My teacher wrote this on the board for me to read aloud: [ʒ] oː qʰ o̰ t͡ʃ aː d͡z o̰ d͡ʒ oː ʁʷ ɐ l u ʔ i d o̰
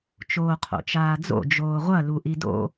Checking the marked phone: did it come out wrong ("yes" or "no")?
yes